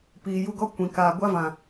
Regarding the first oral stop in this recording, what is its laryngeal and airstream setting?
plain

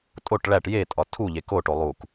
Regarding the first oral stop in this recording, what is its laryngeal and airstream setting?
ejective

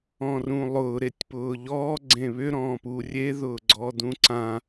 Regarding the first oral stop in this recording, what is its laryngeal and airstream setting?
plain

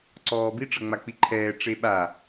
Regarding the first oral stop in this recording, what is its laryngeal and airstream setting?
click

